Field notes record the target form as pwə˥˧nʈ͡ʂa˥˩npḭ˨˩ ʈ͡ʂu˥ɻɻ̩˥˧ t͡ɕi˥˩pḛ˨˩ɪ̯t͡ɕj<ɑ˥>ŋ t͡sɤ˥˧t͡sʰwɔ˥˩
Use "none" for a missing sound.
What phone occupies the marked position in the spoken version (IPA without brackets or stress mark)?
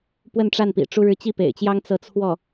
ɑ˥